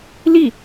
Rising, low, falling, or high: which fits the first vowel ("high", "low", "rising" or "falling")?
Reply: falling